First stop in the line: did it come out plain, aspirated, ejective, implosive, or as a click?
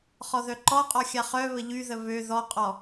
click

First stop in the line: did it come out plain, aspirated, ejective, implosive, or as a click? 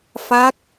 plain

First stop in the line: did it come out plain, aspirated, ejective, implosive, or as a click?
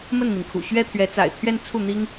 aspirated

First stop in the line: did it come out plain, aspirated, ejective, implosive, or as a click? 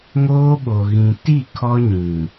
implosive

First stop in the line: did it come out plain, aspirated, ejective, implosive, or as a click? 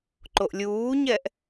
click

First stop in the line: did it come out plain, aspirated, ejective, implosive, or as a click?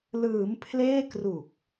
aspirated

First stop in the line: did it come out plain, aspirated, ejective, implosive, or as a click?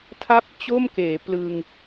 aspirated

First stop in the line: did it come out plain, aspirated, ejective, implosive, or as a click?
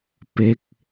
plain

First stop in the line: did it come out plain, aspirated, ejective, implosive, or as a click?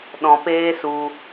implosive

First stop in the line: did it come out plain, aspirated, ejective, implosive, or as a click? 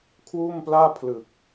aspirated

